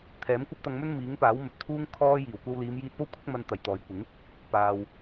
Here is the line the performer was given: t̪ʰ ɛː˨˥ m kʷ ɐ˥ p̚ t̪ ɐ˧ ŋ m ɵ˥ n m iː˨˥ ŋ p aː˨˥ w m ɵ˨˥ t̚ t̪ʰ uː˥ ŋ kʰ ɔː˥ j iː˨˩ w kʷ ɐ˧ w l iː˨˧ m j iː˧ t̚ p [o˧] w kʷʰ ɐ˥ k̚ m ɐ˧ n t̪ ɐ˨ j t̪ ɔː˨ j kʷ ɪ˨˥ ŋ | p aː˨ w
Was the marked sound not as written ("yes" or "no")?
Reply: yes